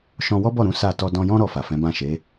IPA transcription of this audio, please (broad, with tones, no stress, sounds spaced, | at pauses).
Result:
ʃ ɔ̃˧ w ɔ˦ b ɔ˦˨ ɾ ũ˨˦ s a˦˨ t ɔ˧ d ɔ̃˧ j ɔ̃˦ ɾ ɔ˧ f a˨ f ɛ̃˨˦ b ã˦˨ ʃ e˨˦